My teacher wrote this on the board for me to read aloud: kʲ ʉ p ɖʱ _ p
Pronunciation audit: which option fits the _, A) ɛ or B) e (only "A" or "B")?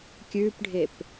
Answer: B